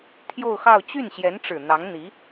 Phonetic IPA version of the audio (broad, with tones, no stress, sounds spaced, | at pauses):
t̪ʰ j o˥˧ ʊ̯ x ɑ˥˧ ʊ̯ t͡ɕ y˥˩ n ɕ j ɛ˧˥ n ʈ͡ʂ ɻ̩˨˩ n̪ ɑ˧˥ ŋ n̪ i˧˥